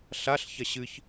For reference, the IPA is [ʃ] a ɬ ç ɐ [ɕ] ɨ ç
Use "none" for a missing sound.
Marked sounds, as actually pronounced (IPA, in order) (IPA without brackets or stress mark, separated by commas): ɬ, ɕ